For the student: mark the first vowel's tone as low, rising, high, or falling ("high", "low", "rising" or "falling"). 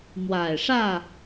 low